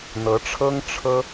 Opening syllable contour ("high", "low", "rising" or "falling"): rising